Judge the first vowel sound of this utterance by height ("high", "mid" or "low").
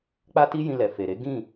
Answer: low